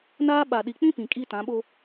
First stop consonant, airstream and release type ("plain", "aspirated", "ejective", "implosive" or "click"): implosive